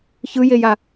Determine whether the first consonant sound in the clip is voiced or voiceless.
voiceless